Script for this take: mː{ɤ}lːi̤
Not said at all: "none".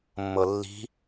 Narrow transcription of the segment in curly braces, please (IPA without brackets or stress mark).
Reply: ɤ